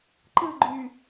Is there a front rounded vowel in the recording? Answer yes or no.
yes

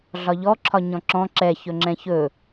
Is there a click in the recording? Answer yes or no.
yes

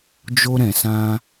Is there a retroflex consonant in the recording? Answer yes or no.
no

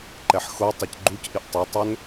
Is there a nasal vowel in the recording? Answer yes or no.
no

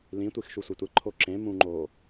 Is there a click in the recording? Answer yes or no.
yes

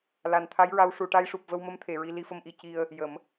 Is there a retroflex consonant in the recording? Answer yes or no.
yes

